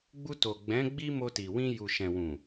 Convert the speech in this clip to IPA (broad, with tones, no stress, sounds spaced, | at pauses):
ɡ͡b u˧ t o˨ ɡ͡b ɛ̃˨˦ ɡ͡b i˦ m o˧ t i˨ w ĩ˧ j u˨ ʃ ɛ̃˨ w ũ˨